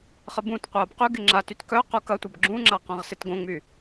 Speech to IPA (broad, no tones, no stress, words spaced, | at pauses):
χəbũtqʷɐːb qyɡɪ ŋ͡ǁatyt kœ qukɐtʷɐb ɡ͡ǁũŋ͡ǁa qɐ̃ʁsɪtɡõŋ͡my